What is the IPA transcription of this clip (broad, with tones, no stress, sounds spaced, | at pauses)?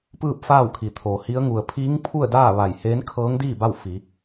p ɯː˥˨ p̚ f aː˥˨ w kʰ i˩ t̪ʰ oː˩ h i˧˥ ə̯ ŋ u˩ ə̯ pʰ iː˧˥ ŋ pʰ u˥˨ ə̯ d aː˥˨ ʋ a˧˩ j h eː˧˥ n kʰ ɤː˧˥ ŋ d iː˥˨ b a˥˨ w f i˩˧